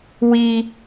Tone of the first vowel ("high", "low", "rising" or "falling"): high